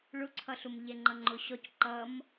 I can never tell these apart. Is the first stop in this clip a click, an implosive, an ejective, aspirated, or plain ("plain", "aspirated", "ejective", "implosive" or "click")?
click